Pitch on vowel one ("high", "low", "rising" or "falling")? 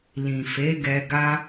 low